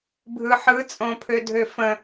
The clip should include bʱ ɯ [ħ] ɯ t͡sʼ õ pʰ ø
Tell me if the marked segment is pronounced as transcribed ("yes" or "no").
yes